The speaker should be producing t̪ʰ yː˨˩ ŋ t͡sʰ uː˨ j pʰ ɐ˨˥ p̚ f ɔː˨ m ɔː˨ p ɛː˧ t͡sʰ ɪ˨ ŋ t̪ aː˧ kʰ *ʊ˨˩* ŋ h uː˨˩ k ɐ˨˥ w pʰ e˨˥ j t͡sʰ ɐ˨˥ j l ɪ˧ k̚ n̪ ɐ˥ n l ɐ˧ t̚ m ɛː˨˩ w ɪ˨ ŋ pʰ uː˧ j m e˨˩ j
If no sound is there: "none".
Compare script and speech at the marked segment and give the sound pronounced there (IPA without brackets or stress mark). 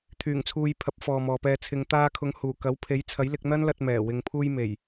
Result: ʊ˨˧